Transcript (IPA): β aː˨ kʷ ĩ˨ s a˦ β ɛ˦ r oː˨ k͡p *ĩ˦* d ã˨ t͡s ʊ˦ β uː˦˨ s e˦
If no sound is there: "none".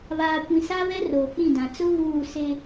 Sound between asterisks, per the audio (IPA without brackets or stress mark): ĩ˦˨